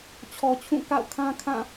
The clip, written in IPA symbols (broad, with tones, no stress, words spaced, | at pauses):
t͡ɕʰɔ˨t͡ɕʰũ˦˨ ka̰˦˨ʊ̯ kʰã˦kʰã˦˨